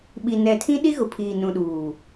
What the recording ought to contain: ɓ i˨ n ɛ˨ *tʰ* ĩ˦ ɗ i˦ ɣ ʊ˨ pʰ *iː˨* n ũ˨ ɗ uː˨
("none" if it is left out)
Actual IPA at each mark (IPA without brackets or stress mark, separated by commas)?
tʰ, iː˨